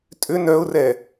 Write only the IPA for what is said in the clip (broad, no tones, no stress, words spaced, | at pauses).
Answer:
tʼʏ nœʊ̯rɛ